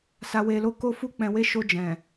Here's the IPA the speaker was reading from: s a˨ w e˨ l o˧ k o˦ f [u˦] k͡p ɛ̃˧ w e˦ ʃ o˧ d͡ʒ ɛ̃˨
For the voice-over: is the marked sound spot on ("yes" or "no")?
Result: yes